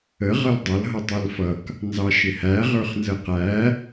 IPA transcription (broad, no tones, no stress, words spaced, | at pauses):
ə ʁʌldˤʌl ɦʌtˤælfʌk | nzɑʃɪhæ ʁə˞χnzəqæ